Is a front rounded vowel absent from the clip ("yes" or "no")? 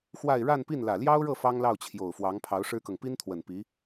yes